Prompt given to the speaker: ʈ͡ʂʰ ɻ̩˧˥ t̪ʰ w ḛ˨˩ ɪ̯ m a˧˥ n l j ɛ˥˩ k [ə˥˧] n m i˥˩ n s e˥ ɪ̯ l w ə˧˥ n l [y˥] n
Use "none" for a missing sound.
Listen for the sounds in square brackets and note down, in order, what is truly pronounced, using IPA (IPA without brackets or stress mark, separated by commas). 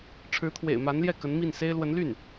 ə˧˥, y˥˩